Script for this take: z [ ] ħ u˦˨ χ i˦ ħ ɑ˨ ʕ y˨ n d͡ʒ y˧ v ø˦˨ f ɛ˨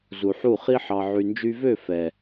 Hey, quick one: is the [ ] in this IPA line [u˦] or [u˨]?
u˨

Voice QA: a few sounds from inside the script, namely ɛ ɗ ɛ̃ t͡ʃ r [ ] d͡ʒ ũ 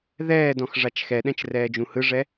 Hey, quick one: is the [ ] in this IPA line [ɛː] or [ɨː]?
ɛː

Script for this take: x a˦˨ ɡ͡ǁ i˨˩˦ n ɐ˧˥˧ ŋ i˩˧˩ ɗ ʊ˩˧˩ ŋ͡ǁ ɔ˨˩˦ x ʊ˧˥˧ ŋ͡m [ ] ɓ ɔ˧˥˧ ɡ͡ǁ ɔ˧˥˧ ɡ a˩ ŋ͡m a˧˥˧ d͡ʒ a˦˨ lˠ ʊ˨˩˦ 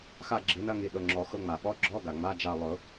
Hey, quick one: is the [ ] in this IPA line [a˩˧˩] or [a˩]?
a˩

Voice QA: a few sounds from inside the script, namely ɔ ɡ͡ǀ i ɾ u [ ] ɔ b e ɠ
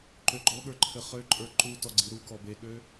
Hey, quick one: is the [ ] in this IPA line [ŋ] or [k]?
k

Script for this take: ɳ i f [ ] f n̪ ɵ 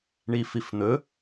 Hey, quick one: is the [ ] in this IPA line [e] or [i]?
i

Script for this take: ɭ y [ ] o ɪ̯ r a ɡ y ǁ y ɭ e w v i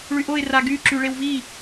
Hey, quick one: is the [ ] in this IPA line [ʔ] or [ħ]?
ʔ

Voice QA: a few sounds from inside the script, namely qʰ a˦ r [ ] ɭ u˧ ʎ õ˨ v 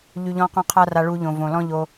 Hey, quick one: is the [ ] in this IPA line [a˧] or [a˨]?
a˧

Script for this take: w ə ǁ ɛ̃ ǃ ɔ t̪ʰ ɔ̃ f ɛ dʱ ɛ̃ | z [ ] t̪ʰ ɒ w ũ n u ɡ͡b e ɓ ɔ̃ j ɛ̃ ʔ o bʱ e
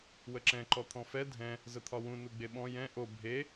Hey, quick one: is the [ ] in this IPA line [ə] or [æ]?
ə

